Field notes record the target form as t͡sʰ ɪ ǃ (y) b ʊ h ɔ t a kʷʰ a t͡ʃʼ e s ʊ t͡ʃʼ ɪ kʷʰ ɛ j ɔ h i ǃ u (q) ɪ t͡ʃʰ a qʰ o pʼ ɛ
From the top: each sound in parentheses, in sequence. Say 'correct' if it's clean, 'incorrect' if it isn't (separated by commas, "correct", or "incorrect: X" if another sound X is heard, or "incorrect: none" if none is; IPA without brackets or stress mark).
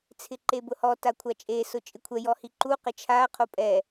incorrect: e, correct